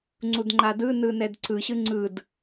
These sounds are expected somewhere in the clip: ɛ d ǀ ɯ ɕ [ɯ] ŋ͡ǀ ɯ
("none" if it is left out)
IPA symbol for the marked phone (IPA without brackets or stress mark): ɯ